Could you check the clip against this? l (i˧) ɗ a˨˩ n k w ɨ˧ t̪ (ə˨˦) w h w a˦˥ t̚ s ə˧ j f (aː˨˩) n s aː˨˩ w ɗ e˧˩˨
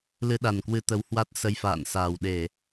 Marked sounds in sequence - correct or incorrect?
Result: incorrect: ɨ˧, correct, incorrect: a̰ː˧˨

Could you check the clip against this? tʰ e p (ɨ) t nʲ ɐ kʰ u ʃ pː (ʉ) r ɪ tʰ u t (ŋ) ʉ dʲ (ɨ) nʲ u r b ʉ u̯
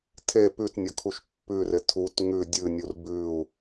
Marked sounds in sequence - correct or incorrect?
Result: incorrect: ʉ, correct, correct, correct

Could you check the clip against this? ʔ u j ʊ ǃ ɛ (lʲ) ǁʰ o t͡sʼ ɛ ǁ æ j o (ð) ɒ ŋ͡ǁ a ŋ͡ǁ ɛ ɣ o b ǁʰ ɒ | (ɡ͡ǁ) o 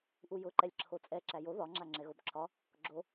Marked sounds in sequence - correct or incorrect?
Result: correct, correct, correct

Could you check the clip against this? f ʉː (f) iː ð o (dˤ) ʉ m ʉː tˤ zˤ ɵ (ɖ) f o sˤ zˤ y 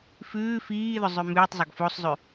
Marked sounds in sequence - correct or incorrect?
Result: correct, incorrect: zˤ, incorrect: ɡ

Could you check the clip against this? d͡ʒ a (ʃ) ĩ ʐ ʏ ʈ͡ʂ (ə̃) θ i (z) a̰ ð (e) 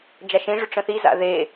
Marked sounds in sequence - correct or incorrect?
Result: correct, correct, correct, correct

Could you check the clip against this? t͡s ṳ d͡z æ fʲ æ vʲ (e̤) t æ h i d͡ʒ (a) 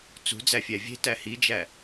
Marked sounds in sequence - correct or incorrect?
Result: correct, incorrect: æ

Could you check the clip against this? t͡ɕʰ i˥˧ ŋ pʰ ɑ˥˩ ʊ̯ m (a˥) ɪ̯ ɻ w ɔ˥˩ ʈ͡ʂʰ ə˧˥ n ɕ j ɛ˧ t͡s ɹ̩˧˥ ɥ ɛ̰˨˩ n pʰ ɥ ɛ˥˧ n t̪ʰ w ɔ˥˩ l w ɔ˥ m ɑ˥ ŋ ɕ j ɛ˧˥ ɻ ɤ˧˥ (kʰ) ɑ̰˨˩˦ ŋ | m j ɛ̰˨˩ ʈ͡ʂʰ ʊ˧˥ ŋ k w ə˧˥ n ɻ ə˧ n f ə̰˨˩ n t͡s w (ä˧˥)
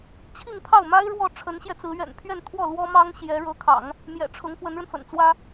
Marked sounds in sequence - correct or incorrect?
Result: correct, correct, incorrect: ä˥

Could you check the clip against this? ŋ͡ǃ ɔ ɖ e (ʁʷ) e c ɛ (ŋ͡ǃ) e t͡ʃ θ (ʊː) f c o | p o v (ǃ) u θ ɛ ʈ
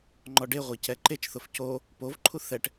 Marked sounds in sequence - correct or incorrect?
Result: correct, incorrect: ǃ, incorrect: ʊ, incorrect: ǃʰ

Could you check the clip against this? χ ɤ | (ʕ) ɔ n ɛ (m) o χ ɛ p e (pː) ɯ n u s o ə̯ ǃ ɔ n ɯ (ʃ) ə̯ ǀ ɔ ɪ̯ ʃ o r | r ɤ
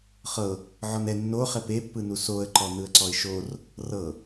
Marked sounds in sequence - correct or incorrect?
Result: correct, incorrect: nː, correct, incorrect: none

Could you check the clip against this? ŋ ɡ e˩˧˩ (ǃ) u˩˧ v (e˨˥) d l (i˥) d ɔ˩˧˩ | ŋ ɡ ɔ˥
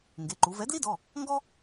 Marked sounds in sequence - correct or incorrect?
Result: correct, incorrect: ɛ˨˥, correct

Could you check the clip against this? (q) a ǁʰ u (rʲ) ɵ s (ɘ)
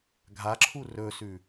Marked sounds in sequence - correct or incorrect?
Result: incorrect: ɡʱ, incorrect: r, incorrect: ʉ

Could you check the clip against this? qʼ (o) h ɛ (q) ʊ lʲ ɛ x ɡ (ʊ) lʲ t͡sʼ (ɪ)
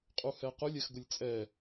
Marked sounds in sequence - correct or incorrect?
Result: incorrect: u, correct, correct, incorrect: ɛ

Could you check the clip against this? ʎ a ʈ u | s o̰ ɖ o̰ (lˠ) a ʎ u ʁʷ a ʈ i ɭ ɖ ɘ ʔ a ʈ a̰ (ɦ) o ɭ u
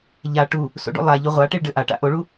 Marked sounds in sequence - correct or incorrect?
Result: correct, incorrect: ʔ

